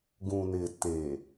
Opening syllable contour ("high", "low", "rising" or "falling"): low